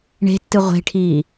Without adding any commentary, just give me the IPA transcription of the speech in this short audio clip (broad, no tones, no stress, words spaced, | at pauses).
ɳe̤tːɨ ʁʷe̤ʈʰiː